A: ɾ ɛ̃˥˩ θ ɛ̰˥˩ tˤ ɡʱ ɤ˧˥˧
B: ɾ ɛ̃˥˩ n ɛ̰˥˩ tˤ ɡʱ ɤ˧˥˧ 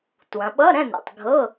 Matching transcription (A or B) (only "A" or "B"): B